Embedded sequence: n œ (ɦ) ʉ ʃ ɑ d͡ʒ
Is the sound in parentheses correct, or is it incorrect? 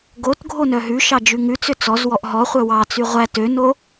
correct